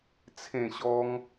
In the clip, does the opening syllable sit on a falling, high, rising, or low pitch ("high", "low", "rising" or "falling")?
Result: falling